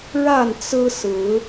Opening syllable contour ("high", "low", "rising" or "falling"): falling